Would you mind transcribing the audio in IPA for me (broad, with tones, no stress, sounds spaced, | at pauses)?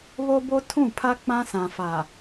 β o˦ b o˦ tʰ ũ˦˨ pʰ a˦ k͡p ã˦ s ã˨ f a˨